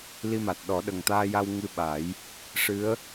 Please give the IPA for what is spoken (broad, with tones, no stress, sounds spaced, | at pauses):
l i˧ m a˨˩ t̚ ɗ ɔ˨˩˦ ɗ ə˨˩ ŋ t̪ aː˧ j a˧ w ŋ ɨ˧ ɓ a˨˩˦ j | ʂ ɨ˧˥ ə̯